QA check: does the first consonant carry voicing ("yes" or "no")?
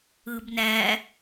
yes